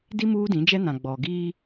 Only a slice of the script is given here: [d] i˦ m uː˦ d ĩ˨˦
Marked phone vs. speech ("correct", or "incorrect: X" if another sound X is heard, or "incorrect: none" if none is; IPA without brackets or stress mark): correct